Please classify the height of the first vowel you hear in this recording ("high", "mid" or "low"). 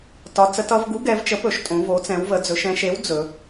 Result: low